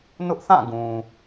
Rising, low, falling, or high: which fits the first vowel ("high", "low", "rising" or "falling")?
high